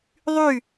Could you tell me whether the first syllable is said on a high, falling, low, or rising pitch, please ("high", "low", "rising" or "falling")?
falling